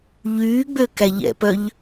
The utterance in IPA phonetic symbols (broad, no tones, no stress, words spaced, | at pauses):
ʎyːɡ͡bø kæʎɛ̰pœʎ